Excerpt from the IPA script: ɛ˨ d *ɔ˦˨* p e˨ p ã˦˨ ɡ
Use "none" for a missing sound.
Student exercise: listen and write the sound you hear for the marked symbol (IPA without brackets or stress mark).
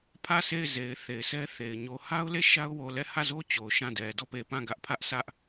ɔ˦˨